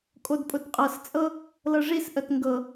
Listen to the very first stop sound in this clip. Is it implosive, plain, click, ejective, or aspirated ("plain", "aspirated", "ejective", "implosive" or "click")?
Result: ejective